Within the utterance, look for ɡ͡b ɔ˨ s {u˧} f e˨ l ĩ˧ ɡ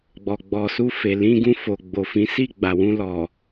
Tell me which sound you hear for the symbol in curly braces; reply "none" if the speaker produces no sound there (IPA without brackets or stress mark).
u˧